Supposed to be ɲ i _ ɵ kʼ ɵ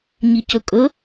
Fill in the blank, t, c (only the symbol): c